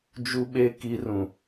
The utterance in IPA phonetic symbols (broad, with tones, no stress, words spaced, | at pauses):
d͡ʒu˦ɓe˦ ki˦rũ˨